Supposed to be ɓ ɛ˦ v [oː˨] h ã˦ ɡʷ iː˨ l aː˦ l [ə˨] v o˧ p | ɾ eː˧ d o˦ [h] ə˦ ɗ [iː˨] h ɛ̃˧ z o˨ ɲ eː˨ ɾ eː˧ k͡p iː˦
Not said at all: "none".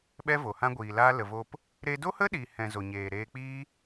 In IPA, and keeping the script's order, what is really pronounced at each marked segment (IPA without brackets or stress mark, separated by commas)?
o˨, ə˨, h, iː˨